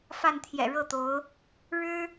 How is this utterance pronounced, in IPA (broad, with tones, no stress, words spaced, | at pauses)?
fa˥˩nt̪ʰjɛ̰˨˩ɻɤ˥˩t̪o˧˥ʊ̯ | ɻɻ̩˥